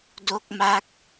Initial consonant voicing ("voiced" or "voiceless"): voiced